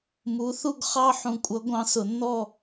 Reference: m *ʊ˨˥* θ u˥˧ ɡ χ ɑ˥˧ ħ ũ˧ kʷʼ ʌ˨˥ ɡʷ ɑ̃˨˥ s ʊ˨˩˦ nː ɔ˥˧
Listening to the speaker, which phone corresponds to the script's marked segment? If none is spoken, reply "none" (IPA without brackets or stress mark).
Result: u˨˥